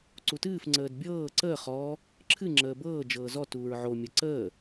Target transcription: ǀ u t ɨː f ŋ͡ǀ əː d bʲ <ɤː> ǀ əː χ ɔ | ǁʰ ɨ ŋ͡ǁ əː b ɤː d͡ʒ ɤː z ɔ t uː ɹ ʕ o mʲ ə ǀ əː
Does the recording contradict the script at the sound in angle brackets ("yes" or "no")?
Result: no